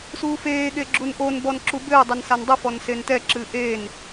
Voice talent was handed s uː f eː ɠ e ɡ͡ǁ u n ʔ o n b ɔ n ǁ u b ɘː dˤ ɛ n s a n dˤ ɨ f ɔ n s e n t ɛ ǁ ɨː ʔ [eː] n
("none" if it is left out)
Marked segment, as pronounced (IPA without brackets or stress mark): eː